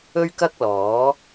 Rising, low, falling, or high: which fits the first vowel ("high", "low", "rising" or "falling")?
high